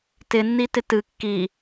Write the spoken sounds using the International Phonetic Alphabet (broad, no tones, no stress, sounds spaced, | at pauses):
t ɪ nː i t ɪ t ɨ kː i